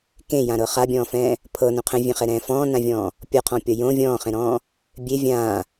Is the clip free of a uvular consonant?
no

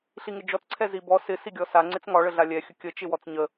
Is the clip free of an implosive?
yes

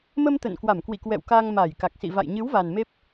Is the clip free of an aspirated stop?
yes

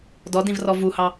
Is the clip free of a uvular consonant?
yes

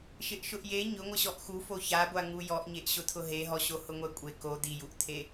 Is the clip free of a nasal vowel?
yes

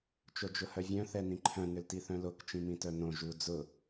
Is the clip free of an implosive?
yes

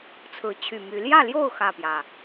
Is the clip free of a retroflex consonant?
yes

